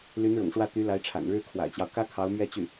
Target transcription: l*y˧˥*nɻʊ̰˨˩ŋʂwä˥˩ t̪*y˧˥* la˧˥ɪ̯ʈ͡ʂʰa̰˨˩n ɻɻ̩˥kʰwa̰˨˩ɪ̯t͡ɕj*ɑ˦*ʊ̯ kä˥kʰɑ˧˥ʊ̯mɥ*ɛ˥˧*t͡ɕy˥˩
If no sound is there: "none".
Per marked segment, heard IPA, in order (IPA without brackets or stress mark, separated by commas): y˧˥, y˧˥, ɑ˦, ɛ˥˧